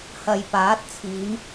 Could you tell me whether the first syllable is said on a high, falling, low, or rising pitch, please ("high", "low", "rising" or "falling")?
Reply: low